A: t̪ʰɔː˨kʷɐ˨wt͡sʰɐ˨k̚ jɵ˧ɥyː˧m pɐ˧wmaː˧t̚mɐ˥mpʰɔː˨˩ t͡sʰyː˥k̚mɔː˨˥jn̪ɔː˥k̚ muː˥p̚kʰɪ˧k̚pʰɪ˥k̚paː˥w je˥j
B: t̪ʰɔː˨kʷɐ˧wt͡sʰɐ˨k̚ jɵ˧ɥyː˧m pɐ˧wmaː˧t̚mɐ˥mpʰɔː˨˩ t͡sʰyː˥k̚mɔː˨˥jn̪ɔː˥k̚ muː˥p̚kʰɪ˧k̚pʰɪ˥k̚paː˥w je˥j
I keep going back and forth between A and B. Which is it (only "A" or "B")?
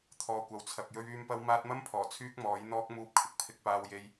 A